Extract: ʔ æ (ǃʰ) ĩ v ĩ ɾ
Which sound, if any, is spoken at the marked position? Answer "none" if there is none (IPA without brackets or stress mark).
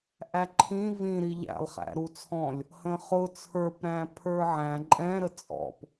ǃʰ